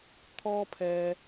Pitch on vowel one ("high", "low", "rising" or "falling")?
high